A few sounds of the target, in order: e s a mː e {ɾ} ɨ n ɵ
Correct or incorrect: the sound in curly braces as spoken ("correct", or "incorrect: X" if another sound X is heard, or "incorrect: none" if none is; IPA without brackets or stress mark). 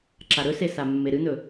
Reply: correct